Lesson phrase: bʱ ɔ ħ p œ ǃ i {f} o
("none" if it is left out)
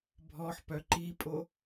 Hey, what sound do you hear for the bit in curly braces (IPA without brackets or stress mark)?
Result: pʼ